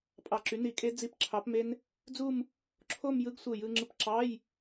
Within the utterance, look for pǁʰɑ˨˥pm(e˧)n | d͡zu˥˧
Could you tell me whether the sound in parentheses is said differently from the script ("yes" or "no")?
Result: yes